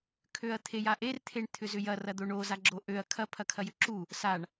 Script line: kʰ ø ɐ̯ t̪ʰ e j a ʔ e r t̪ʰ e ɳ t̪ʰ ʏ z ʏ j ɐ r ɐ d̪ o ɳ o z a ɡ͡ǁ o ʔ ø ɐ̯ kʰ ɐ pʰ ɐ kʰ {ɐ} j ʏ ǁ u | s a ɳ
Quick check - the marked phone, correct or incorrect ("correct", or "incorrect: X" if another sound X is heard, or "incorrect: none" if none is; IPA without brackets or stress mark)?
correct